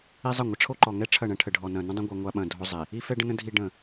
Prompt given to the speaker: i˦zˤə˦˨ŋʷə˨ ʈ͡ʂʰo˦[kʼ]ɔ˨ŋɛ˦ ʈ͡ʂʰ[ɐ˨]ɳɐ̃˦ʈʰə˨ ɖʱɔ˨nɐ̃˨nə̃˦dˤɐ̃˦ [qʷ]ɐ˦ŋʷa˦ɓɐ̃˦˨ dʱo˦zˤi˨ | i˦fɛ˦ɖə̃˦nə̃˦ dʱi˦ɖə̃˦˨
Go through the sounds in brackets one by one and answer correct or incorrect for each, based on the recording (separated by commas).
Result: incorrect, incorrect, incorrect